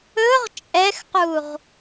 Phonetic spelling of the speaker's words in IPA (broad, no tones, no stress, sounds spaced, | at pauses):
ɵ ʁ t͡ʃʼ ɛ x q u ʁ